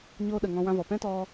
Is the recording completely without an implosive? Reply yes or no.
no